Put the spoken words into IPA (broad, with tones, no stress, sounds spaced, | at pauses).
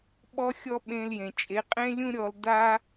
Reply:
ɓ ɔ˦ xʲ ɔ˦ ɓ ẽ˧ l j ẽ˨ t͡ʃʼ e˨˦ qʼ ẽ˦ lʲ ũ˦ ɾʲ ɔ˧ l d a˦